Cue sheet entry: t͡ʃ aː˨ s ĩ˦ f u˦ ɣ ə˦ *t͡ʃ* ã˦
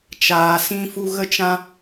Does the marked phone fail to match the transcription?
no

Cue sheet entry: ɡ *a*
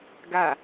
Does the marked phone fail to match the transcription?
no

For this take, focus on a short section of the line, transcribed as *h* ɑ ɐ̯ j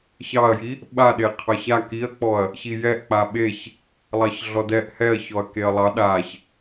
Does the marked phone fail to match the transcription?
yes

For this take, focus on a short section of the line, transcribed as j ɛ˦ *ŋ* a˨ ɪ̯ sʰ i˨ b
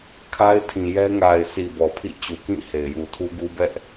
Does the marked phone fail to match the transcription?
no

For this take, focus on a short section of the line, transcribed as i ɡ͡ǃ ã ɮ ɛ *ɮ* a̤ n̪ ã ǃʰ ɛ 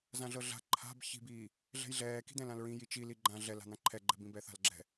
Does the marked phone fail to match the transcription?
yes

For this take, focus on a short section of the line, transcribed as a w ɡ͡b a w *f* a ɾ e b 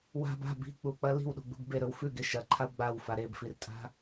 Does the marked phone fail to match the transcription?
no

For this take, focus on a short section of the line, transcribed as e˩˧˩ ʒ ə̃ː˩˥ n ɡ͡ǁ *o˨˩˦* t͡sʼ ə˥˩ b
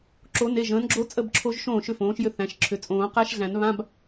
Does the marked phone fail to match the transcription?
yes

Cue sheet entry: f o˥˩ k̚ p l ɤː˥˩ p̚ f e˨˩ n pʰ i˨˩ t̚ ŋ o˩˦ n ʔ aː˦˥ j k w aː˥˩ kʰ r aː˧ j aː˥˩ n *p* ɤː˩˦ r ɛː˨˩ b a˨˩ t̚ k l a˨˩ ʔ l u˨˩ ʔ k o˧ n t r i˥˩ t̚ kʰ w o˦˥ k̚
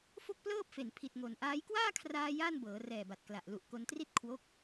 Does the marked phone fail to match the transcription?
yes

